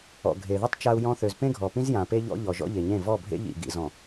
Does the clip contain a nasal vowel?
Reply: yes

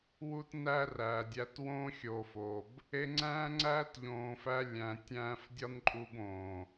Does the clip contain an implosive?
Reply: no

